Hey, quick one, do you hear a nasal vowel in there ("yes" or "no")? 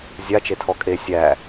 no